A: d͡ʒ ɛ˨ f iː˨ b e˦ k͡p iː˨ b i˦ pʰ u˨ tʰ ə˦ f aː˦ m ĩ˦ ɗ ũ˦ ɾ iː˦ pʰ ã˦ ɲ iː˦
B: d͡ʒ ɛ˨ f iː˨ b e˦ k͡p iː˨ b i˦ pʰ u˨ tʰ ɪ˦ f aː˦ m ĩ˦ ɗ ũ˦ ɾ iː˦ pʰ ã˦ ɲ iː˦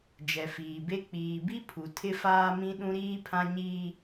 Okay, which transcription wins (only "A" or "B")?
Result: B